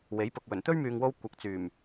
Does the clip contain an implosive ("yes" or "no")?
no